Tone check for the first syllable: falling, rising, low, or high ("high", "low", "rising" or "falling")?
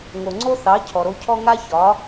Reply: low